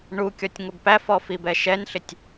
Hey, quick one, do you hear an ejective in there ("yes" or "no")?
no